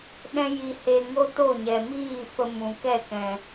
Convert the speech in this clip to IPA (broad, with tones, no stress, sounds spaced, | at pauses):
ɗ ɛ̃˦ j i˧ h e˧ ŋ o˦ t o˦˨ ɲ ɛ˨ m iː˦˨ f ə˧ m ũ˨ k ɛ˦˨ k ɛ̃˨